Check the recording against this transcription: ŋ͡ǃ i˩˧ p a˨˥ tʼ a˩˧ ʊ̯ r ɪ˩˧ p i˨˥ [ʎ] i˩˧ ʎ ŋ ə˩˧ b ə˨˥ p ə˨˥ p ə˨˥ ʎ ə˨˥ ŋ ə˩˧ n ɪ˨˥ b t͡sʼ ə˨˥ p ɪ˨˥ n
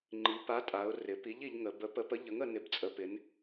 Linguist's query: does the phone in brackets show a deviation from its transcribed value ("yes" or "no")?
no